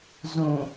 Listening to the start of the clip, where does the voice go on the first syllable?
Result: low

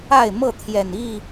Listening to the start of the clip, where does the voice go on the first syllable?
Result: falling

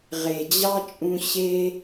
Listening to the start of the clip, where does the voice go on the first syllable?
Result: low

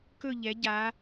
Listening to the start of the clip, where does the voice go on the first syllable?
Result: falling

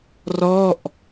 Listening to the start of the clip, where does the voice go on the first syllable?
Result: falling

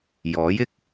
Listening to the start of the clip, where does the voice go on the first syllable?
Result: rising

